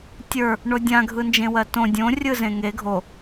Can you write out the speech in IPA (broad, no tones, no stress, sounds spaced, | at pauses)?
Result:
tʲ ə˞ | ɳ o dʲ ã ɡʱ ɯ n d͡ʒ ẽ w ɜ t õ dʲ õ rʲ ɯ z ẽ ŋ e ɡʱ o